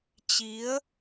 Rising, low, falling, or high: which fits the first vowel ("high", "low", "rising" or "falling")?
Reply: rising